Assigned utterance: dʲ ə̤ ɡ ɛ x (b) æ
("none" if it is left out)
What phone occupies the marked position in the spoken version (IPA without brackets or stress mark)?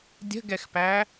p